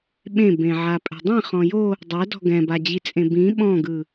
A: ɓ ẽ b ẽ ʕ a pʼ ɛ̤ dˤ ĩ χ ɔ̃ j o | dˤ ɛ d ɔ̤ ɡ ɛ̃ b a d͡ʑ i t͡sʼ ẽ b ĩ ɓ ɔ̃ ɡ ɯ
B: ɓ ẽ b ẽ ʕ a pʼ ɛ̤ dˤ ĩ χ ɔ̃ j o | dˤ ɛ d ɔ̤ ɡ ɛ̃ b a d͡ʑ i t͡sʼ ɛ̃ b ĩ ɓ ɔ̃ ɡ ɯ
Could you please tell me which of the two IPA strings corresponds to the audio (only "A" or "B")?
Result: A